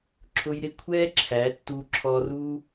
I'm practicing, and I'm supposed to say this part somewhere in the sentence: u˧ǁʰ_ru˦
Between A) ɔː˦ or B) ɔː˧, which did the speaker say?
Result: B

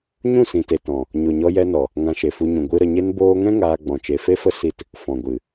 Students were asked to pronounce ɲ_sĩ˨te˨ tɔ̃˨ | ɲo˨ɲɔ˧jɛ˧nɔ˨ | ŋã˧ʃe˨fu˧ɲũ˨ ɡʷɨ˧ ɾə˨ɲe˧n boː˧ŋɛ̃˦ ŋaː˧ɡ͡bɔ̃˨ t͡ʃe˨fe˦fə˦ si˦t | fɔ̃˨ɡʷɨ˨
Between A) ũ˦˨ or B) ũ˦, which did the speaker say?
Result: A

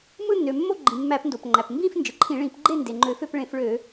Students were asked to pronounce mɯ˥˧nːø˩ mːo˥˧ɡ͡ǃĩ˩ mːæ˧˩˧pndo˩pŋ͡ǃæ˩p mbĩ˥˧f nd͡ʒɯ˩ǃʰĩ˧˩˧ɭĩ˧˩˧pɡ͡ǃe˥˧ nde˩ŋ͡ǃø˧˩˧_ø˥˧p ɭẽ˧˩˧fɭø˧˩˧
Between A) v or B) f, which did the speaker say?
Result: B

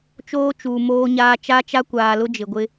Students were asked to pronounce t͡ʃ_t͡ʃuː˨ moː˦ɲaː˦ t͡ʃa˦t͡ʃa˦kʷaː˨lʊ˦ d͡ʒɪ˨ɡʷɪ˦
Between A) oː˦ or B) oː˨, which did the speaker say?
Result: A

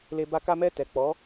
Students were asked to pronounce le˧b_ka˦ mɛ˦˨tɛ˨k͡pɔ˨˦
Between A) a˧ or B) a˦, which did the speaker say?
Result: B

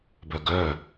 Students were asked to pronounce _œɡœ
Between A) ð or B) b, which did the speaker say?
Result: B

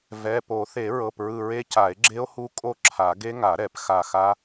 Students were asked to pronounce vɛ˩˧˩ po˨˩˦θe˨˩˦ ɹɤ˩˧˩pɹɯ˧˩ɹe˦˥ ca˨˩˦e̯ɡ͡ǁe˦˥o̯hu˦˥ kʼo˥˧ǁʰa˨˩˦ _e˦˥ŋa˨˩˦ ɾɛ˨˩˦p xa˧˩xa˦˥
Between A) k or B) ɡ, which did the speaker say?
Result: B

